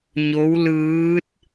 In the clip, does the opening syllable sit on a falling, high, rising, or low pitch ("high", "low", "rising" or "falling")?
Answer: rising